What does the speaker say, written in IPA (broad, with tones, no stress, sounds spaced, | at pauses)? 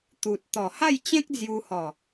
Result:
t̪ u˨ t̚ t̪ ɔ˨˩ h a˥˧ j t͡ɕ ẽ˦ k̚ d͡z j u˧ h ɔ˨˩